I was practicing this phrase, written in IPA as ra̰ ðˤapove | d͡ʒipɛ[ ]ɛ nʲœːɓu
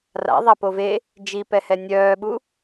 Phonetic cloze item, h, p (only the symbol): h